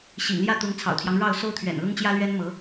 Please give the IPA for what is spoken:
ɕḭ˨˩ŋljä˥˩t̪ʊ˧˥ŋ t͡sʰɑ̰˨˩ʊ̯t̪ʰjɑ˦ŋɻɑ˥˩ʊ̯ so˥ʊ̯t̪ʰɥɛ̰˨˩nlʊ˥ŋ t͡ɕjä˥lɥɛ˥nmɤ˧˥

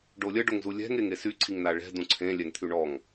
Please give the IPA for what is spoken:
ɖolʲə ɖoŋzulʲɛ̤ŋ eŋesy ǀʰiŋnaɭɛ̤ dũǀʰẽ lʲɛŋt̪ʰyɳɔŋ

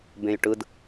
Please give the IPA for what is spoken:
bẽjʈɯd

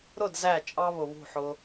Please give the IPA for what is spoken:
ɾʊ˦˨d zæ˦˨ t͡ʃʼɑ˦βʊ˨βṳ˦˨ħʊ˧

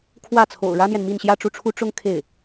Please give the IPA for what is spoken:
kʰwä˥˩t͡sʰo̰˨˩ʊ̯ ɻä˥n̪jɛ˨nmi˥˧n ɕjä˥˧ʈ͡ʂu˥˩ʈ͡ʂʰu˥ ʈ͡ʂʊ˥ŋ kʰe˥˩ɪ̯

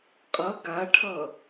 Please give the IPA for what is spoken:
qʼʌ ɡaʈʰʌ

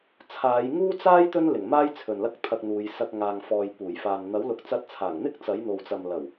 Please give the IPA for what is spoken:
t͡sʰaː˨˧jŋuː˥t͡saː˥j t̪ɵ˥nlɪ˨˩ŋmaː˥j t͡sʰɵ˨nlɐ˥k̚t̪ʰɐ˧k̚n̪uː˨˧j sɐ˧k̚ŋaː˨ŋfɔː˨j puː˨˩jfaː˨n n̪ɐ˨˥wlʊ˨˥k̚ t͡sɐ˧t̚t͡sʰaː˨˩ŋn̪ɪ˥k̚ t͡sɐ˨˥jn̪o˨wt͡sɐ˨mlɐ˨˩w

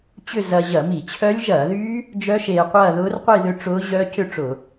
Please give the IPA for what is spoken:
t͡ɕʏ˥˧ zɐː˧ʑɐ˧˩˧mi˧˩˧t͡ɕʰœ˦˥lʲ ʒɐː˧˩˧ðy˦˥ | d͡ʒœ˦˥ʃeː˧qʷɐː˥˧ ðʊː˦˥rqʷi˥˧ðʏ˥˧ ʈ͡ʂʊː˦˥ ʑœː˦˥cʏ˥˧ʈ͡ʂʊ˧˩˧

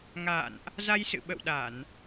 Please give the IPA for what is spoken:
ŋa̰ː˧˨nʔ | za˧jsɨ̰˧˨ɓə̰˧˨wɗa˧˩˨n

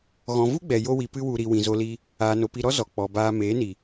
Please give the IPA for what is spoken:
ɣɔ̃˨vu˦ɡ͡bɛ˨ jo˧wi˨ pɨ˦wu˧ɾi˧ wĩ˨zo˧li˧ | aː˨no˨pi˧ɾɔ˦ zɔ˨k͡pɔ˨baː˧ meː˨˦ni˨

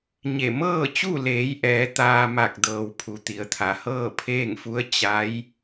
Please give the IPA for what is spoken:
ɲe˧˩ mɤː˥˨t͡ɕu˥˨leː˩˧j ʔɛː˩˧t̪aː˧ ma˧˩k̚dɤː˩w pʰu˩˧t̪i˩˧ə̯t̪ʰa˩˧ hɤː˥˨pʰeː˥˨ŋfu˧˥ə̯ t͡ɕa˧˥j

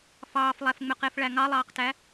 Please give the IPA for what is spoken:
fɑːflˠæfŋ͡møqef ɭæŋɑlˠɑːqtæ

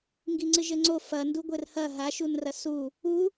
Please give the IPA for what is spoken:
ŋɡiŋ͡ǀɨʒɘŋ͡ǀo fɐnduɡʷɘr hɐ ɦaʃun rɐsu | u

